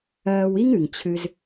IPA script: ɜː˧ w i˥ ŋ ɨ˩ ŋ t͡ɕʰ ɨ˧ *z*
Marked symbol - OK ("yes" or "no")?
yes